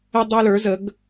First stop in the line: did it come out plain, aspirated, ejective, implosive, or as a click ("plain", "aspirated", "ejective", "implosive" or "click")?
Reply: plain